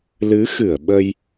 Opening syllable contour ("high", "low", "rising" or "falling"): rising